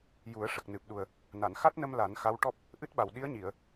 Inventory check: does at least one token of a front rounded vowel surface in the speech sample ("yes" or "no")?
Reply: no